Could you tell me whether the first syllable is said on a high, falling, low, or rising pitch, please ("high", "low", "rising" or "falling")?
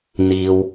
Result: low